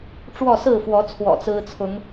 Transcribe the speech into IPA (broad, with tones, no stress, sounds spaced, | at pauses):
ʈ͡ʂ w ɔ˥˨ s ɹ̩˥˨ f w ɔ˨˦ t͡sʰ w ɔ̰˨˩ t͡s ɹ̩˦ t͡sʰ ʊ˨˦ ŋ